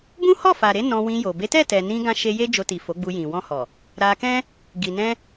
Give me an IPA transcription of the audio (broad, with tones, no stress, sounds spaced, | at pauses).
b ũ˦ h ɔ˦˨ f a˨ ɾ e˧ n ɔ̃˧ w ĩ˧ j o˨ b e˨˦ t ɛ˦˨ t ɛ˨ n ĩ˧ ɡ ã˧ ʃ e˧ j e˦ d͡ʒ o˧ t i˨ f o˨˦ ɡ͡b u˧ j ĩ˨ w ɔ̃˧ h ɔ˨ | ɾ a˧ k ɛ̃˦ | ɡ i˨ n ɛ̃˧